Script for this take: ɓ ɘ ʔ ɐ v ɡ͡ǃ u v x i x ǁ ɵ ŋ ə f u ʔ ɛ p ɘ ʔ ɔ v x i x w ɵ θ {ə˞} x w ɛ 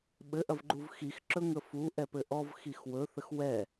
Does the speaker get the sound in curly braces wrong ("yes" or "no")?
yes